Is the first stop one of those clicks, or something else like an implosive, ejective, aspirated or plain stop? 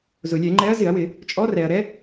click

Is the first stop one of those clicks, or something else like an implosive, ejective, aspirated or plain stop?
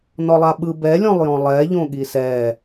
implosive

